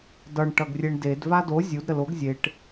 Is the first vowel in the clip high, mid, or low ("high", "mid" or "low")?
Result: mid